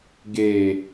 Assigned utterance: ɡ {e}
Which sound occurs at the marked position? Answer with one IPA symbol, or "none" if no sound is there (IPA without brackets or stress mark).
e